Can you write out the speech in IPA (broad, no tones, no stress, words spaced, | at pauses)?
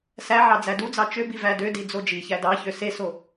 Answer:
sæʕɑ d͡zædud͡zɑ t͡ʃøbi vædødi d͡zod͡ʒiçæ dɑ çøseso